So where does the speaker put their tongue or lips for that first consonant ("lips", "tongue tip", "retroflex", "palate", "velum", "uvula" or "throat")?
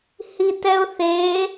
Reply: throat